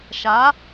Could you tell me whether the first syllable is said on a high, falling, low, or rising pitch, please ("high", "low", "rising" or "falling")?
rising